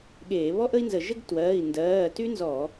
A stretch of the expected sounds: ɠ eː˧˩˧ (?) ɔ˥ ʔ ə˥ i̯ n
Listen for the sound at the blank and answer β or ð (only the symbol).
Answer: β